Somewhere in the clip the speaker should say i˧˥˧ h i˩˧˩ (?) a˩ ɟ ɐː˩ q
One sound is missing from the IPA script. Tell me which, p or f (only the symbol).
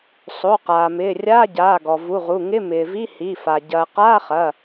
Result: f